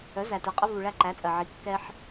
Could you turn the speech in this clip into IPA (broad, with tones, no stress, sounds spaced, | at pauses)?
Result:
œ˩˥ z æ˩ t ɛ˩ qʼ ə˦ v u˩ ɭ æ˦ ǃ æ˩˥ t͡sʼ ɜ˩ ʕ i˩˥ kː ɛ˦ ħ